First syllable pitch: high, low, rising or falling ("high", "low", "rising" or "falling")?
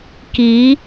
rising